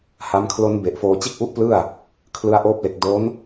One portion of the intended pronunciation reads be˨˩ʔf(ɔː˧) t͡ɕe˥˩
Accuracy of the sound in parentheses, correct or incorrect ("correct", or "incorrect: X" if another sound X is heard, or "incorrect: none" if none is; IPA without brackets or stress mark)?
incorrect: oː˧